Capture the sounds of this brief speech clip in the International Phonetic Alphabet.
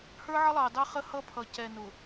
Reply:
h ə˞˦ ʕ ə˦ lˠ ɑ˨ d ɑ˦ χ ə˦ h ʌ˦ pʰ ʌ˨ c ɛ˨ n ʊ˨

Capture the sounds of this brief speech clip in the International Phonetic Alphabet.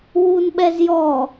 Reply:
w u n ɓ ɛ z j ɔ

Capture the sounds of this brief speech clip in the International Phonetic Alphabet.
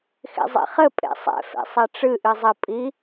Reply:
x ḛ zˤ ḛ χ ɘ pʼ ḛ sˤ ɛ̰ f ḛ sˤ ɛ ʈ͡ʂ ɨ ʔ ɨ zˤ ɘ pʼ i

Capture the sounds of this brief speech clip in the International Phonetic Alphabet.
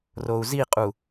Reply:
r o u̯ z i qʼ u

